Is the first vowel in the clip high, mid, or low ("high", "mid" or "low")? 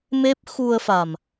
mid